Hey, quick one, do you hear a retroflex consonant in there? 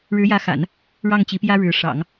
yes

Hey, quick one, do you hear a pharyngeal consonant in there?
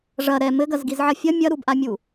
yes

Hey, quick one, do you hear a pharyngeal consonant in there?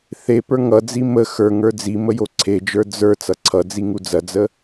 no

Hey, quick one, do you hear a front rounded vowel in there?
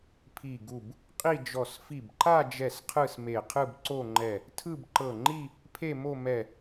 no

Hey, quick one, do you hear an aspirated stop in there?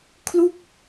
yes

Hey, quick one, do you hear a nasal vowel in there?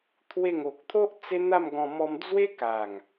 yes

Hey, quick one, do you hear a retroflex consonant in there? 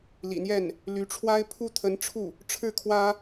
yes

